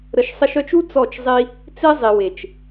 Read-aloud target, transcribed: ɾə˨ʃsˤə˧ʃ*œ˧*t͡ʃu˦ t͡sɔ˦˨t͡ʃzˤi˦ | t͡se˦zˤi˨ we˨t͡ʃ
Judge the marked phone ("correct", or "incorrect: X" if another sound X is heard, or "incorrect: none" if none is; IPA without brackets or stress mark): correct